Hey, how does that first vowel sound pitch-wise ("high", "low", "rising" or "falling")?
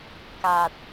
low